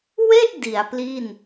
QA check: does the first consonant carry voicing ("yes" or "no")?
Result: yes